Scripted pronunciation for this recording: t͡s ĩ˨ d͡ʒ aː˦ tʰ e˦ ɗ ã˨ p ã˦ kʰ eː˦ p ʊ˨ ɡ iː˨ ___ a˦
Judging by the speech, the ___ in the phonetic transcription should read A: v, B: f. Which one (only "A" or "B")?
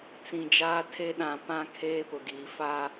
B